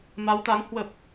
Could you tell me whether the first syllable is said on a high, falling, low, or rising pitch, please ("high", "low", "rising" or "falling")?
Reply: rising